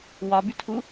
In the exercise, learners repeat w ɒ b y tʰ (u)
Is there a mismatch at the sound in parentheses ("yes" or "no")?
no